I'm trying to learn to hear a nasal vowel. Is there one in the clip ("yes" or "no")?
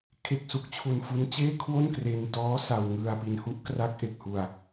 no